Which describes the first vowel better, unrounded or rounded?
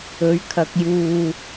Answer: rounded